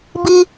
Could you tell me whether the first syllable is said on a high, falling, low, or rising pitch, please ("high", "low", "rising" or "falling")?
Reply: high